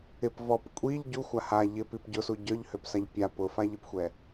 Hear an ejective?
yes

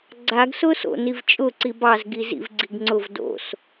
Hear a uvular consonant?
no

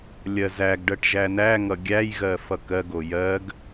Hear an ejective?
no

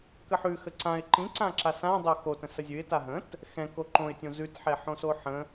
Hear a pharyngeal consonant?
yes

